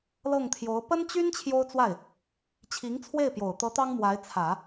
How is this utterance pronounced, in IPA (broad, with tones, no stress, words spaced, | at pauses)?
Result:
lɤ˥˩ŋt̪ʰjo˧˥ʊ̯ pə˥nt͡ɕy˥n t͡ɕʰjo˥ʊ̯t͡swa˥˩ɪ̯ | t͡ɕʰi˧˥ŋt͡sʰwe˥˩ɪ̯pjo˨˩ʊ̯ t̪ɤ˧˥ t̪ɑ˥ŋmwa˧˥ɪ̯t͡sʰä˨˩˦